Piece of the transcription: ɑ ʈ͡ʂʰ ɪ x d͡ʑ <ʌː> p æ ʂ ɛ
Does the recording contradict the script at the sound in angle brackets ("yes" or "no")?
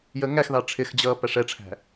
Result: no